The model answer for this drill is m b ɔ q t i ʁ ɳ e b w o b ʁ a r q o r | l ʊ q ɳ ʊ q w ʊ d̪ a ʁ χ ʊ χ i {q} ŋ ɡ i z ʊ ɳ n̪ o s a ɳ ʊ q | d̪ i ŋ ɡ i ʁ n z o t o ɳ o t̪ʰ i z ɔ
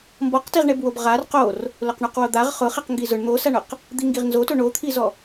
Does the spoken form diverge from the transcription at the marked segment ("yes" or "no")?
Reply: no